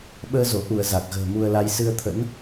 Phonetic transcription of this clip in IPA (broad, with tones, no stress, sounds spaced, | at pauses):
ɓ əː˧ z o˧˩ ʔ u˧˩ ə̯ z a˨˩ k̚ ɣ ə̤ː˨˩ m u˧ ə̯ l a˧ j s ɨ˧ ə̯ t̪ʰ ə̰˧˥ n